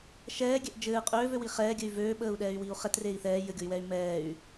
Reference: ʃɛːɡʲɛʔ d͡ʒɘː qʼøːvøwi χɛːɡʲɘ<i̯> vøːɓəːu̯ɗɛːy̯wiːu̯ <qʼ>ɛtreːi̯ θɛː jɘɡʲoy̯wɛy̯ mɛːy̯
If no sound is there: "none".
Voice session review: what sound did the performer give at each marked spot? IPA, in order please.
y̯, χ

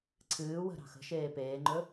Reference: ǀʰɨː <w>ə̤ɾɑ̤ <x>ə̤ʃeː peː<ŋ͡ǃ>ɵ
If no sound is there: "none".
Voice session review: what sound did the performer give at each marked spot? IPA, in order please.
w, x, ŋ͡ǃ

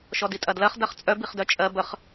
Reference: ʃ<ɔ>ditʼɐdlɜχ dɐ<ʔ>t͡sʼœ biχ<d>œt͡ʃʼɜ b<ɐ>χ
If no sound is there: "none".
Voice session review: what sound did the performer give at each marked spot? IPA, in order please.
ɔ, χ, d, ə

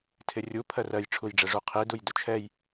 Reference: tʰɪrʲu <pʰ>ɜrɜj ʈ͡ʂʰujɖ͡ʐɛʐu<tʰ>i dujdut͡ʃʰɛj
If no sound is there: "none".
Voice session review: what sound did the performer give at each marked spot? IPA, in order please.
pʰ, qʰ

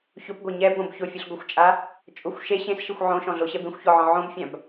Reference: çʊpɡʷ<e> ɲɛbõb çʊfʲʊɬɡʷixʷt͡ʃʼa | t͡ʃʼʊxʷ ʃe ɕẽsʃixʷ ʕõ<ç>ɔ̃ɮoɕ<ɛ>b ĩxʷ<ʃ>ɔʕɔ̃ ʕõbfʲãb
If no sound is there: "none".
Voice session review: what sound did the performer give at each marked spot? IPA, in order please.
e, ʃ, ɛ, ç

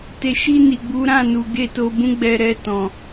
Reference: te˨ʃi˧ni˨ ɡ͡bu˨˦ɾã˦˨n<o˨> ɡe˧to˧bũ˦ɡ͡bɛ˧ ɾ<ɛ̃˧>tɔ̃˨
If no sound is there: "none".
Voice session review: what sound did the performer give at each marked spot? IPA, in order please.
u˨, ɛ˧

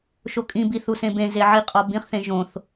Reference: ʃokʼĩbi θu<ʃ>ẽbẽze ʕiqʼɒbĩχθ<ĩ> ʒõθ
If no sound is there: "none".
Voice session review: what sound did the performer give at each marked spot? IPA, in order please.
s, ẽ

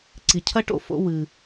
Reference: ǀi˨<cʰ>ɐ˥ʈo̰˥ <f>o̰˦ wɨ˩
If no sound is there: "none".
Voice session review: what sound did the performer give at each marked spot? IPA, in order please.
cʰ, f

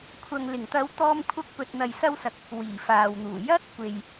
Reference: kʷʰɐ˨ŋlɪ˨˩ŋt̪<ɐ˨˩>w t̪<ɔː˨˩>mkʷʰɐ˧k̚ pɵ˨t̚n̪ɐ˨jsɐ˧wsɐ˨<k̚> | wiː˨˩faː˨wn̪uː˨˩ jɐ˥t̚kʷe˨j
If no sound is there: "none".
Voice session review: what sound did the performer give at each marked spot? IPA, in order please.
ɐ˨˧, ɔː˧, k̚

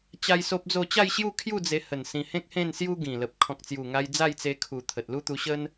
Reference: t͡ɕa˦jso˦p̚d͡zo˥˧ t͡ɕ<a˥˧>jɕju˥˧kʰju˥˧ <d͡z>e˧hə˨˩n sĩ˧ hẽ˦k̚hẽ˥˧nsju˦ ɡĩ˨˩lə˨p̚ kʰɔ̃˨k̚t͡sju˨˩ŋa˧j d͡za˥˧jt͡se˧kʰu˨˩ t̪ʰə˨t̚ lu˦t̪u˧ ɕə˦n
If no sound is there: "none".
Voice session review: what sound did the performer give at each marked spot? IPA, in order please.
a˥˧, d͡z

